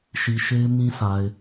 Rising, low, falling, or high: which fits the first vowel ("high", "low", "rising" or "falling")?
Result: low